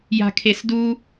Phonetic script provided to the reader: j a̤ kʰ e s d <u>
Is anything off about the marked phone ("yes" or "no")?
no